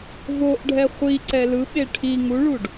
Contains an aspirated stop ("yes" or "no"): yes